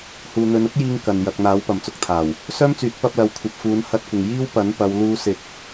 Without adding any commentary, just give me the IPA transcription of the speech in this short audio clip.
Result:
h uː˨ n̪ ɵ˨˧ n ʊ˥ k̚ j iː˧ ŋ k ɐ˨ n j ɐ˨ k̚ n̪ aː˨˥ w p ɐ˨ m t͡s ʊ˧ k̚ t̪ʰ aː˨˩ w | s œː˥ m t͡s yː˨˥ t̚ p ɐ˧ p̚ l ɐ˨˧ w kʷʰ ɐ˨ p̚ f uː˨˧ n h ɐ˧ t̚ kʷ ɪ˨ ŋ j iː˥ w p ɐ˨˥ n p ɐ˨˧ w l uː˧ s ɪ˨˥ k̚

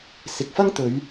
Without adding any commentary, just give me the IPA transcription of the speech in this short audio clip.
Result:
s ɪ˨ k̚ f ɐ˥ ŋ t̪ ɵ˨˧ ɥ

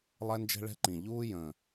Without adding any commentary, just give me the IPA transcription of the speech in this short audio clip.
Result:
lˠ ɛ˦ n d͡ʒ ɛ̤˦ ɭ ɛ̤˦ ǃ ĩ˨˩ ʎ uː˦ j ə̃˨˩

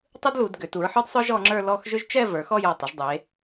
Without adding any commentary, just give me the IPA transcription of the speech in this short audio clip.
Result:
tˤ ɯ˥ d l u˩˧ d ɡ ʏ˩˧ t u˩˧ ɹ ħ ə˞˥ d sˤ œ˥ ʒ ɔ˩˧ ŋ͡ǁ ə˞˥˧ l ɔ˥˧ x ʒ ʏ˥ ʒ t͡ʃ ɛ˥˧ v ə˞˩˧ x ɔ˥˧ j ɔ˧˩ tˤ ʏ˩˧ ʒ dˤ e˩˧

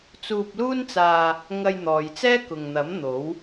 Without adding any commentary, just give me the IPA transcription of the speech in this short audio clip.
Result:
t͡s uː˧ p̚ l uː˥ n t͡s aː˧ | ŋ ɐ˧ j n̪ ɔː˨ j t͡s ɛː˥ k ʊ˨ ŋ n̪ ɐ˨˥ m n̪ o˨˥ w

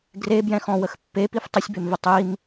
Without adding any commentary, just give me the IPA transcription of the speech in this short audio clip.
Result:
ɡ r e b j ɛ̃ x ɔ̃ w ə x pː e p i f tˤ ə sʲ b e m v ə tˤ i m

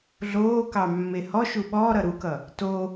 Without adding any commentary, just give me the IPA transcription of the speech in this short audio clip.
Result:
ɮ oː k ɑ mː e h ɔ ʃ u ɓ ɔː ɾ ʌ ɾ u k ʌ | t o

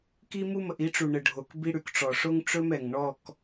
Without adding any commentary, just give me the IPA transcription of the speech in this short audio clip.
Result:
k i˦ m u˦ m ə˨ ʔ i˨˦ ʈ͡ʂ u˨ ɳ ə˨ ɖʱ o˨ k b i˦ ɽ ʉ˨ k ʈ͡ʂ ɔ˨ ʂ o˦ ŋ ʈ͡ʂ ɵ˦ m ɛ˨ ŋ ɳ ɔ˦˨ k

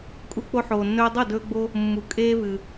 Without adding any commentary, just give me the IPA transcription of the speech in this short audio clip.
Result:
kʼ u˧ k͡p o˧ ħ oː˩ nː ɵː˧ dˤ o˥˩ d ɵː˧ ɡ͡b o˧ | mː u˩ kʼ eː˧ v ɨ˩

